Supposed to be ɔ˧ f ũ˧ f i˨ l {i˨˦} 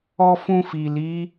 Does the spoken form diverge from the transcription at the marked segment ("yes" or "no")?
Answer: no